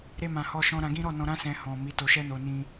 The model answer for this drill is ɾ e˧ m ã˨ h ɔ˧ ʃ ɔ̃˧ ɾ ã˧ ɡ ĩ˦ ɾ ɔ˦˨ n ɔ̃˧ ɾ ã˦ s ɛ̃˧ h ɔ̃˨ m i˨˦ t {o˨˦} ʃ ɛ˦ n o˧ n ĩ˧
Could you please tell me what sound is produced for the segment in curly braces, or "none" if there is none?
o˧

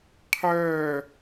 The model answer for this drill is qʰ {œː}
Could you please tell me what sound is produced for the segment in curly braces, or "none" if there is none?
œː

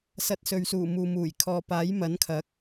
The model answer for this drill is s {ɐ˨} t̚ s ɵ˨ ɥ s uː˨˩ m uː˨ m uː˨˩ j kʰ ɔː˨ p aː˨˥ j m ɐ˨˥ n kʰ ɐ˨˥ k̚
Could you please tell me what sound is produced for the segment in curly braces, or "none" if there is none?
ɐ˨˥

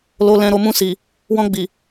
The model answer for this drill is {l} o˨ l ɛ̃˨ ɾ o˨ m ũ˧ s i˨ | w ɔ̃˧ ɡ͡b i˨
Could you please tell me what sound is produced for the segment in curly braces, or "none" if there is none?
l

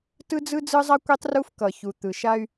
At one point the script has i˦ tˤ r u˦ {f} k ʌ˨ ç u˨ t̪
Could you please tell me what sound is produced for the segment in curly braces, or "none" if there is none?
f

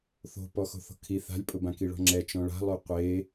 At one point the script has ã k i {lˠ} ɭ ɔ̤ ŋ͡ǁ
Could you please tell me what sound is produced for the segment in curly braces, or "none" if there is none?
none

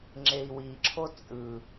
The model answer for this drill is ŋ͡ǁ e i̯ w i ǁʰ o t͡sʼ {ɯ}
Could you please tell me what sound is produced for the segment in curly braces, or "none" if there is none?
ɯ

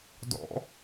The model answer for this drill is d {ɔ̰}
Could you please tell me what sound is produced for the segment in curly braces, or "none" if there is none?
ɔ̰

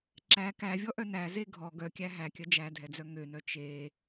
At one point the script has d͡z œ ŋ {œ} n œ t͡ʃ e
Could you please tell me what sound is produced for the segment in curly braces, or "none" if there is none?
ø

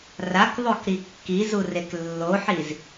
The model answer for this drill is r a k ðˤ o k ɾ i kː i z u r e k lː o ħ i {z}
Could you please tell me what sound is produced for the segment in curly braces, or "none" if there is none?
z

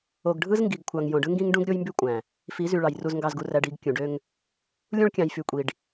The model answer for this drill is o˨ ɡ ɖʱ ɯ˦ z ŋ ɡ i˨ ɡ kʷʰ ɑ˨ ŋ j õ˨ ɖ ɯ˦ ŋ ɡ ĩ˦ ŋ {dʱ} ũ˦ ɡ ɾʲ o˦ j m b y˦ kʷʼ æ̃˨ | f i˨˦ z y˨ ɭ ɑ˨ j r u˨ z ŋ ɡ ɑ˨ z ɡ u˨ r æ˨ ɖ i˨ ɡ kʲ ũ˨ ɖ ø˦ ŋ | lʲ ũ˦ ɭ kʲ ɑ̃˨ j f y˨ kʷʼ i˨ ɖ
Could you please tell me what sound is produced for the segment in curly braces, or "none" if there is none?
ɖ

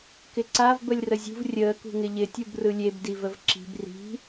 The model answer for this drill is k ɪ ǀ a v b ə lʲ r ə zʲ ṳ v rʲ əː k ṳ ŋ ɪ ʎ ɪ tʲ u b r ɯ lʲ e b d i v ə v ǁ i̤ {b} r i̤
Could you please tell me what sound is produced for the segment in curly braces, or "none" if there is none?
b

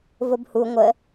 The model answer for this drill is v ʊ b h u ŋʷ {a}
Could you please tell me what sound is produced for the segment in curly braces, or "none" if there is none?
ə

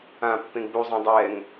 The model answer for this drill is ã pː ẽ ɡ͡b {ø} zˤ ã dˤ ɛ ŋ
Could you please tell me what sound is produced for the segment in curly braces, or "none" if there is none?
u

